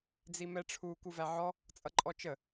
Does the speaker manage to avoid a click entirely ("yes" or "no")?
no